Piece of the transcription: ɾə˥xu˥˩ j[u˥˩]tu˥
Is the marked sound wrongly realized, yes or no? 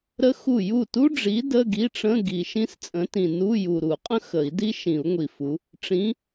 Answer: no